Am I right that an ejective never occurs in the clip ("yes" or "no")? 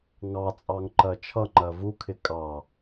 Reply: no